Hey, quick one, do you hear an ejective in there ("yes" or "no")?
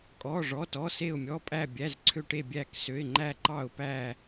yes